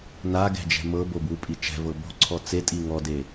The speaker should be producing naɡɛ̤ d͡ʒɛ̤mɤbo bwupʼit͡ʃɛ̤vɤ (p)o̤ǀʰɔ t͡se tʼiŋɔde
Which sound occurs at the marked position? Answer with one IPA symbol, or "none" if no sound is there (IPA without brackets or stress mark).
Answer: b